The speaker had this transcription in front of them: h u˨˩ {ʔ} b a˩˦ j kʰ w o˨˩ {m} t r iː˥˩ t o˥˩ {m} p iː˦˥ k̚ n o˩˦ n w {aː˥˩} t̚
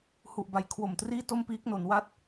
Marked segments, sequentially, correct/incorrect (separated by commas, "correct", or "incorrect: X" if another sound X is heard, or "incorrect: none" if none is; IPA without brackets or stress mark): correct, correct, correct, incorrect: a˥˩